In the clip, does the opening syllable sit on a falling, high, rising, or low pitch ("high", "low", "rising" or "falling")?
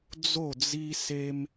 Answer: falling